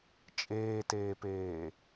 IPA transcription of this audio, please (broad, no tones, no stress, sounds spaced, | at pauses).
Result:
t͡ʃʼ eː t eː p eː